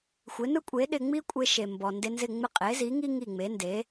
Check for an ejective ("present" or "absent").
present